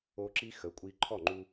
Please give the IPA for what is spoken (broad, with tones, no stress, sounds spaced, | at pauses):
o˧ ǁ i˦ x ə˨˦ kʷʼ i˧ ǃʰ ɔ˦˨ ŋ͡ǃ u˧